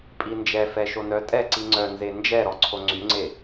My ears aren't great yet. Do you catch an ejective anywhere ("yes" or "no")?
yes